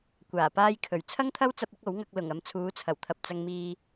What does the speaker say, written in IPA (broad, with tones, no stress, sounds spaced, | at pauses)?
kʷ aː˨˩ p aː˧ j kʰ ɵ˨˩ ɥ t͡sʰ ɐ˥ ŋ t̪ʰ ɐ˥ w t͡s ɐ˧ p̚ ɪ˨˥ k̚ o˨˥ w ŋ ɐ˧ k̚ l ʊ˨˩ ŋ ɐ˨ m t͡sʰ uː˨˥ t͡sʰ ɐ˨˩ w t̪ʰ ɐ˨ p̚ t͡s ɐ˧ ŋ m iː˧